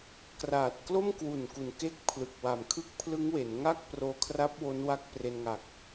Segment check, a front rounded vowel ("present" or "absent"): absent